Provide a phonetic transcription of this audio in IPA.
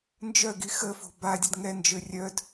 nd͡ʒœɡi xəfo̤ badʲəd ŋɛnd͡ʒø rʲœd

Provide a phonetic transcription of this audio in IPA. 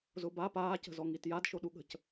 zʊba paːcə̤zɔ ŋitjadʃoɗu ɠə̤c

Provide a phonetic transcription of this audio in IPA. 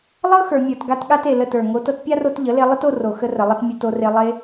lˠɤ˦ xə˞˨ mʲə˞˨t ɡa˧tɠa˧te˨ lə˦˨tə˞˨ ŋo˨˦tɤ˧t pʲa˦ro˧t ʎə˨˦le˧ lˠə˦to˧ro˨ xə˧rə˨ lˠə˦t mʲə˧to˧re˧ lˠe˧

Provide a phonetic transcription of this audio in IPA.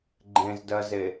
ɡ͡ǃẽzdɜze

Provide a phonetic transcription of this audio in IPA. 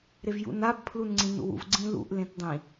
ɾevjṵnab pʰlunŋ͡ǀĩnṵwṵv ɡ͡ǀĩlṵʔ lẽtdˤĩ

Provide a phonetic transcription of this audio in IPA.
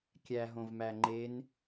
kʲæɦõvmæ ŋ͡ǃen

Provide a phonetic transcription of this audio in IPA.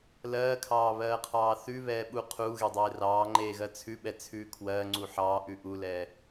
lɜːkʰɑːβɜːqʰɑː θʉβɛːɓu qʰuːɣedˤeː rɑːŋ͡ǃeːɣɜ t͡sʰʉɓɛt͡sʰʉː kʰwɜːŋ͡ǀu ħɑːʔʉ ʔulɛː

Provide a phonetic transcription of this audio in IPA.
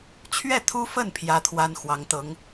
t͡ɕʰɥɛ˥˩t̪ʰu˥fə˥˩n pʰjä˥t̪ʰwa˥n xwɑ˧˥ŋt̪ɤ˧˥ŋ

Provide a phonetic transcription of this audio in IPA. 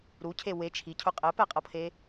ɾucʰe we t͡ʃʰicʰʊ qʼɛpɛqʼɤpʰe

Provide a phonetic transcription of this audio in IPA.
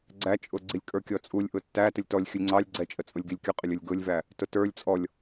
ɡ͡ǀæt͡ʃʼʊɡ͡ǀilʲ kʼə˞kʲɔt͡sʼulʲ ʔʊtːætəlʲ tɔlʲ xʲʊlʲŋ͡ǀɑlʲ ɡ͡ǀɛt͡ʃʼət͡sʼʊlʲ ɡilʲkʲʊqʼɪlʲ ʊlʲɡʊlʲvæ | tʊtə˞lʲ t͡sʼɔlʲ

